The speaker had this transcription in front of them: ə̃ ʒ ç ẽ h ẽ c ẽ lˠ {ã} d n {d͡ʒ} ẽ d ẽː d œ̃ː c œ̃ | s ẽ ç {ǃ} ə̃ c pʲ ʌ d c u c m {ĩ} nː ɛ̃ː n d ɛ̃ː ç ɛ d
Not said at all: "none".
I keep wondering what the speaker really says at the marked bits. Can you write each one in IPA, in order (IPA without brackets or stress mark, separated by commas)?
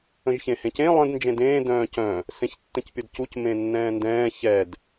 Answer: ə̃, d͡ʒ, tː, ẽ